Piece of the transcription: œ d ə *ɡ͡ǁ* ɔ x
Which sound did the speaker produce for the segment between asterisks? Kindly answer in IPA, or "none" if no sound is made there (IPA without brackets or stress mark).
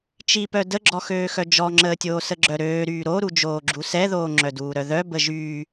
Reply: ɡ͡ǁ